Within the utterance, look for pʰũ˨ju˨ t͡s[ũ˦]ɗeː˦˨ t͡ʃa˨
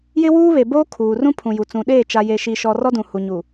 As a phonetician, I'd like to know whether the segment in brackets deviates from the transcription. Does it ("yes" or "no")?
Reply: yes